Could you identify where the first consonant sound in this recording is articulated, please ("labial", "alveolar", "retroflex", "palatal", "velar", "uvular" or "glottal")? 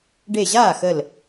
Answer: retroflex